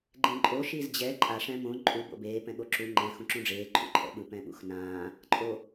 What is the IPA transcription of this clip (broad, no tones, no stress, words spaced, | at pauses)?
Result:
ɡ͡ǃẽǃʼo ʃizd͡ʑɛ ǃʼa ʂɛ̃mõ ǃʼu bo̰beː pɛ̃ɠoǁu ŋ͡ǃɛ̃ xũǁũɖ͡ʐeː ǃʰṵǃʰɛ̰ɓɯ pɛ̃ɓṵxnãː | ǃʼo